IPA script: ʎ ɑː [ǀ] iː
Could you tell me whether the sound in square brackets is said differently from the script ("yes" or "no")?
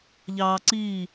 no